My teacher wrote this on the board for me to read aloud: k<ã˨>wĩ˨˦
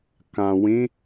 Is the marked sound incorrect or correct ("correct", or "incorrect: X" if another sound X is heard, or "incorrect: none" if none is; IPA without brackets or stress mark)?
correct